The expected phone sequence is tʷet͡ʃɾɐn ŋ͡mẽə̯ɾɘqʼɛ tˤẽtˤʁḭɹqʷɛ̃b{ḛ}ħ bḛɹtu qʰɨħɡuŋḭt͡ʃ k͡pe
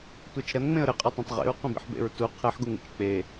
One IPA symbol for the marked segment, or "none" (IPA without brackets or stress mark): ḭ